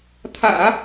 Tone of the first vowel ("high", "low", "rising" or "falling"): low